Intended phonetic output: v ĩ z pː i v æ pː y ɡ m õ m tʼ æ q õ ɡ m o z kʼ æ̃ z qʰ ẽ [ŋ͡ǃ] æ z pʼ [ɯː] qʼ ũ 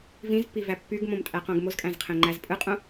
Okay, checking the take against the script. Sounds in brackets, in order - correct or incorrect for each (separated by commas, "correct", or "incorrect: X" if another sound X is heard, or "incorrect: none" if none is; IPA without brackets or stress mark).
correct, incorrect: ɯ